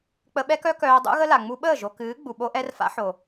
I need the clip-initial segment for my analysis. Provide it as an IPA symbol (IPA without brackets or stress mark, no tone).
k͡p